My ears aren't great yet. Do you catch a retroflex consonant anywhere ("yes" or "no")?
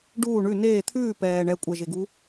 yes